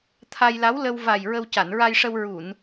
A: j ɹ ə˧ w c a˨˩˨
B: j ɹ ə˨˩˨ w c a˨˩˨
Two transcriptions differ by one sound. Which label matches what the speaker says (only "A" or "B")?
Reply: A